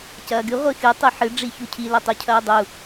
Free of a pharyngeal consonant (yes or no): no